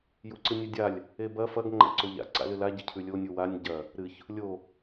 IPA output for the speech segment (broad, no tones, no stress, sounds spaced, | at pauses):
j u ǀ ɨ nʲ e dʲ a lʲ | e b ɐ f ɐ ɡ ŋ͡ǃ a̰ ǀ o ʎ a̰ ǀ a̰ l ɨ l a ɟ ɐ cʰ ʉ lʲ o nʲ u w a nʲ ɟ ɐ | ɾ ɨ ç | lʲ o